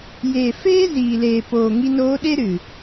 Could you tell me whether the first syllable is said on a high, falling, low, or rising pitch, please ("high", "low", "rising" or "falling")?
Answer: low